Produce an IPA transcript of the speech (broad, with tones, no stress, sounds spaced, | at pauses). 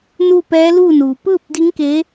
n uː˥˨ p ɛː˧˥ l uː˥˨ n uː˩ p ɯː˥˨ p̚ d i˧˥ ŋ k e˧˥